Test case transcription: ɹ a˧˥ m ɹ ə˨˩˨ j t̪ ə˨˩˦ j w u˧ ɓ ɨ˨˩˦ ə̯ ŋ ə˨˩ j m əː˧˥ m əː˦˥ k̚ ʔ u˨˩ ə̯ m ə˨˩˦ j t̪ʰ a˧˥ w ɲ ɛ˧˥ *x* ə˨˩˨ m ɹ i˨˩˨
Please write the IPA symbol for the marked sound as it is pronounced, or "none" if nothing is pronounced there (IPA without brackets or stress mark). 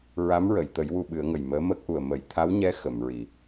x